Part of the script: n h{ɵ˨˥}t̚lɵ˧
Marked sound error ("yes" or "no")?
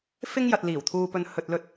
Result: yes